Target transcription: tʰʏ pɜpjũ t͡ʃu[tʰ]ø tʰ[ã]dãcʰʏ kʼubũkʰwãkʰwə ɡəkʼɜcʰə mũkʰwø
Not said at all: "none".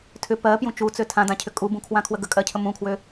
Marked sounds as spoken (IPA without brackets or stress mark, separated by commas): t͡s, ã